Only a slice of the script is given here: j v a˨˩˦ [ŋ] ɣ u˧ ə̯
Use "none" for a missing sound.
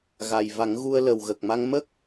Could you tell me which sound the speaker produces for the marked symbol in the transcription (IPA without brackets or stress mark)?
ŋ